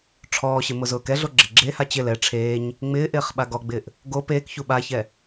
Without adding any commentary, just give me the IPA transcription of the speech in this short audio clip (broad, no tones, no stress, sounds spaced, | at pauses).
ʈ͡ʂʰ ɔː ɕ ɪ m ʊ z ʊː k ɛ ɮ o ɡ͡ǁ ɪ ɡ͡ǁ e h a t͡ɕ ɪ l ɛ ʈ͡ʂʰ eː ɲ | ŋ͡m ɪː ʔ ɪː χ ɓ a ɡ ɔ ɡ͡b ɪː ʔ | ɡ o p eː k ç u ɓ a ç ɛ